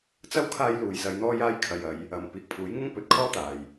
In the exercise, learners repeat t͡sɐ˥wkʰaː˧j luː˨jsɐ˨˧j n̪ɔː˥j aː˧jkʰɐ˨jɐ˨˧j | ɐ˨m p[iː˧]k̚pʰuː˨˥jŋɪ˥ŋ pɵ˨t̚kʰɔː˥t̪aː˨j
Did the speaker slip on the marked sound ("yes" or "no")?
yes